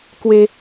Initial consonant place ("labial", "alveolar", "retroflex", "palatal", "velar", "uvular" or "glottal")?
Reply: velar